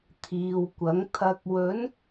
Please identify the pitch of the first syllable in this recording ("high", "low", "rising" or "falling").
low